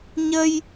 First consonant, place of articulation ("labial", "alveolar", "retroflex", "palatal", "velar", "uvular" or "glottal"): palatal